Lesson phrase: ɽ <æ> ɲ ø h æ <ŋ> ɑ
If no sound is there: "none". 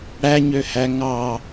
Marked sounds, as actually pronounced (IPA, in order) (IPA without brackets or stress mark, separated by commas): æ, ŋ